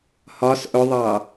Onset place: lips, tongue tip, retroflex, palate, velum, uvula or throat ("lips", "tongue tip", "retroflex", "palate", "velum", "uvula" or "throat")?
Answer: throat